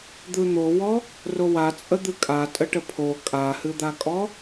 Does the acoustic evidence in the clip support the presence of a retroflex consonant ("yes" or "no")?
yes